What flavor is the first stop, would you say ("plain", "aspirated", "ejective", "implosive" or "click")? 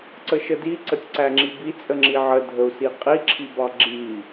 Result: click